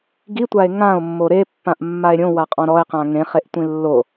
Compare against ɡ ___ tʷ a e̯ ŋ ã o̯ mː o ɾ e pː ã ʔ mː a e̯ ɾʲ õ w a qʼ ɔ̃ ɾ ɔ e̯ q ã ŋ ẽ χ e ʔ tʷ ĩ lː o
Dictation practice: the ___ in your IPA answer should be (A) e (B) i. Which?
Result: B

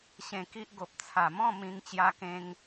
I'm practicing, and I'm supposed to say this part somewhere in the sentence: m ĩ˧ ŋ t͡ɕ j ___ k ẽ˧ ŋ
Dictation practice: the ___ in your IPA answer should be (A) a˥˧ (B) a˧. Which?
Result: B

